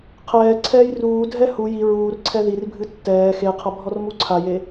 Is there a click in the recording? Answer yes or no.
yes